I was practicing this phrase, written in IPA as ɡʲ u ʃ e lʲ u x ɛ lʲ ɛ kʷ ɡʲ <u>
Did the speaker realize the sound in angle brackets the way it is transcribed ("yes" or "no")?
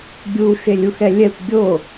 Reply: no